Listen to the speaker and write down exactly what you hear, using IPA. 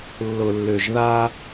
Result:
lː ʊ˨ lː ʏ˨ ʒ ð a˦

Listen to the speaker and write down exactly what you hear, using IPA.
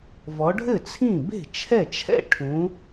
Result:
v ɔ˨˦ ɖʱ ɘ˥˩ t͡sʰ ĩ˥˩ b e̤˥˩ t͡ʃʰ ɛ˥˩ t͡ʃʰ ɛ̰˥˩ ʈʰ ũ˨˦

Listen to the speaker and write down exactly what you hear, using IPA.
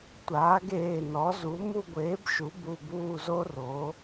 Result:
tʷ aː˩˥ ɡ eː˩˧˩ n ɔ˩˥ z u˩˥ m u˦˨ ɡʷ eː˩˥ b ʃ u˩˥ b u˩˧˩ b uː˦˨ z o˦˥ r o˩˥

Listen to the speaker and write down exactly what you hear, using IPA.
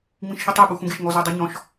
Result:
ŋ͡m ĩ ʃ ç ɨ tˤ ɛ ɓ u x ũ ɡ e ʃ ŋ ɔ z o dˤ u ɲ ɔ̃ ʃ

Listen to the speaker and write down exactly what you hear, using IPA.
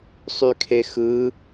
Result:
sˤ y kʰ e x ɯ

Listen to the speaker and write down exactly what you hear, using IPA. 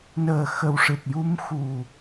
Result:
n əː˨˩ x ə˨˩ w ʂ ɨ˨˩ t̚ j u˧ m x u˨˩

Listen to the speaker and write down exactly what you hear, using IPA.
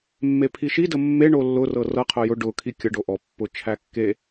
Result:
mː e pʰ i ʃ i d ə mː e ɳ o lː ʊ r ɤ r ɤ qʰ ʊ j ʊ ɖ ʊ kʰ i kʲ ə ɖ o ʔ ɔ pː ʊ t͡ʃʰ æ kː e

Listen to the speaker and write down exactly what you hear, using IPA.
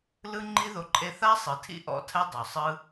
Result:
l ɯ˦ ŋ͡ǃ i˦ ð o˧ ǃʼ e˧ θ a˦ sˤ ɯ˨ tʰ ḭ˦ ʔ ɔ̰˦ tʰ ɛ˦ dˤ u˨ sˤ ɯ˦

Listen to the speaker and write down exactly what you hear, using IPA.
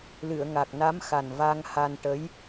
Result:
l ɨ˨˩˨ ə̯ ŋ a˨˩ k̚ n a˧˥ m x a˨˩ n v a˧ ŋ h a˧ n ʈ ə˧˥ j

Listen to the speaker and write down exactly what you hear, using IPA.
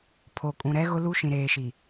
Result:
pʰ o˨ kʼ ũ˨ ɾ ɛ˦ ɣ ʊ˦ l u˦ ʃ ĩ˨ ɾ eː˨ ʃ i˨

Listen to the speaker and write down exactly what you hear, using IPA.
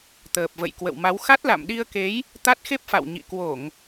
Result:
t̪ əː˨˩ p̚ v ə̰˧˨ j k w ə̰˧˨ w m a˨˦ w x a˦˥ t̚ l a̰˧˨ m ɗ i˧ ə̯ k e˨˦ j | t̪ a˦˥ t̚ x e˦˥ p̚ f a̰˧˨ w ɲ ḭ˧˨ k w o˧˩˨ ŋ

